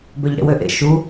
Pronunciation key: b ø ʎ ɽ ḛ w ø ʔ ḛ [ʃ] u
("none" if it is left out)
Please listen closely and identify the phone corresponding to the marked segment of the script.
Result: ʃ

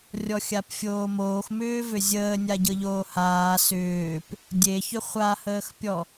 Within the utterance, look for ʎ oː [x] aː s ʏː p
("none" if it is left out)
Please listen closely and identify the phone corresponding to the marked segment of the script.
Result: h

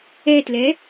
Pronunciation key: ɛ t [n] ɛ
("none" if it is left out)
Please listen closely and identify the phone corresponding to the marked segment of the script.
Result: l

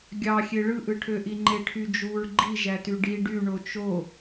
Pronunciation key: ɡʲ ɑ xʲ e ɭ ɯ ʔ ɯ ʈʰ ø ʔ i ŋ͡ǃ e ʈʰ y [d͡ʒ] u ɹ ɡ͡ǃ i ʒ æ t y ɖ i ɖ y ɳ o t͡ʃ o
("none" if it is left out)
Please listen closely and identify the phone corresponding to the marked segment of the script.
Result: d͡ʒ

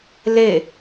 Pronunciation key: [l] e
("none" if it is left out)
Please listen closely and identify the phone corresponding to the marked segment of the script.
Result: l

